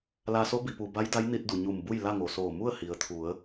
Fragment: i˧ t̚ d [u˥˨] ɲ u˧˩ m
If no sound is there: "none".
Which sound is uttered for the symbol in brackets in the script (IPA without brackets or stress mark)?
u˩